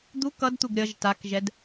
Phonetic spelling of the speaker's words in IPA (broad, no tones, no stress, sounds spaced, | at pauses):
d̪ u k ʌ d t̪ u ɡ ɾʲ ʌ ʒ t a k ʒ ɛ d